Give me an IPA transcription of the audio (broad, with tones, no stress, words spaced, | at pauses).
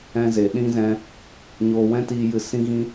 ɛ̃˧ze˨ɗĩ˦ zɛ̃˧ | ɲoː˧wɛ̃˦tiː˧jɨ˧ sĩ˦ɣĩ˦